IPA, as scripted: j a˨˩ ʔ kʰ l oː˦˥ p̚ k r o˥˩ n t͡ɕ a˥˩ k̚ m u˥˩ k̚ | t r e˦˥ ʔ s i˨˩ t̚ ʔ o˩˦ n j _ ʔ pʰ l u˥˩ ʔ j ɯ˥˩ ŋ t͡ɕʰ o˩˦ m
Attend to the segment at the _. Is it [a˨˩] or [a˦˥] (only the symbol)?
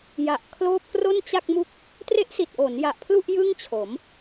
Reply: a˨˩